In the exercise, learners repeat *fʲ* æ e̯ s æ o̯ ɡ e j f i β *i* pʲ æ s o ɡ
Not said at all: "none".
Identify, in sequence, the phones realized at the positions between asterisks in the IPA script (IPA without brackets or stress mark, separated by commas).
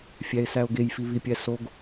fʲ, i